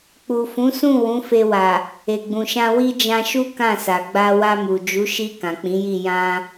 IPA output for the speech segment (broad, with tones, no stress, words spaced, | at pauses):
k͡pu˨fũ˨˦sũ˦˨ wũ˨˦fe˧wa˨ | e˨ɡ͡bũ˨ʃã˧ wi˧ d͡ʒã˧ʃu˦ kã˦˨sa˨ ɡ͡ba˧wa˧mu˨ d͡ʒu˨˦ ʃi˧ kã˨k͡pĩ˨˦ji˦˨ jã˧